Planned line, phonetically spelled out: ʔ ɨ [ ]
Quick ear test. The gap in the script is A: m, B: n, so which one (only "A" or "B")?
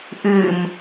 A